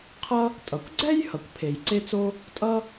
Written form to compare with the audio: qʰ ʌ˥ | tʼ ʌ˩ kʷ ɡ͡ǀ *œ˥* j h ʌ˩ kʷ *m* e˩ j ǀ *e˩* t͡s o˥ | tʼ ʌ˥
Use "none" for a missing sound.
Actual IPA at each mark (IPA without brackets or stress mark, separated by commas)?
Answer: ɛ˥, pʰ, e˥